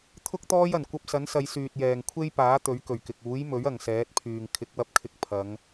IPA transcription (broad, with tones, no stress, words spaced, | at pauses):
t̪ʰʊ˥k̚ t̪ɔː˥jɐ˨˩n kʷɐ˧p̚sɐ˨˥nsɐ˨˧j syː˨t̚jɛː˨˩ŋkʷʰe˥j paː˨˥ t̪ɵ˨˥ɥkɵ˨˩ɥkɪ˨k̚ uː˨˥jmɵ˨˥ɥ ɐ˨ŋsɛː˨˥t̚pʰyː˨ŋ kʰɪ˨˥k̚wɐ˧p̚kʰɪ˧k̚ pʰɐ˨˧ŋ